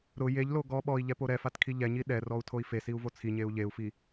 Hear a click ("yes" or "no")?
no